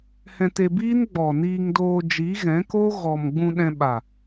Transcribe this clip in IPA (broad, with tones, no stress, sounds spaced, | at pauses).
h ɛ̃˧ t e˧ b iː˦ n ɡ͡b ɔ˨ n iː˧ ŋ d oː˧ d͡ʒ i˨˦ ɣ ɛ̃˨˦ k o˦ ɣ ɔ˨ m ɡ͡b ũ˧ ɗ ɛ̃˧ ɓ a˨